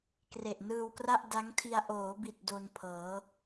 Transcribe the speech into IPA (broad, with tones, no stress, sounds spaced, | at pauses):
k r e˨˩ ʔ n ɯː˧ w k r a˥˩ ʔ d a˦˥ ŋ tʰ i˧ a̯ ʔ oː˩˦ b i˨˩ t̚ d o˧ n pʰ ɤː˩˦